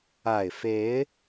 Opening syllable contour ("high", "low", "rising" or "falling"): low